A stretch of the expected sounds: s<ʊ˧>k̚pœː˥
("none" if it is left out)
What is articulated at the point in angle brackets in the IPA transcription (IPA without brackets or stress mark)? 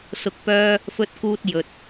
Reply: ʊ˧